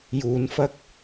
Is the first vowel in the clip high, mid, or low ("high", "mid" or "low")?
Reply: high